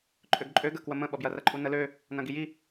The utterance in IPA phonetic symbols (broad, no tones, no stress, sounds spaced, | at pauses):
ǃʼ ø ɡ ǃʼ ø ɡ ə k w ə m ə̃ ɓ ʌ b j ɐ r ɐ ǃʼ u n ə l ø | n ɐ̃ ɡ i j i